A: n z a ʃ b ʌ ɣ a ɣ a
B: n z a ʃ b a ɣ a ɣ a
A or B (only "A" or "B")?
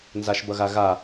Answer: A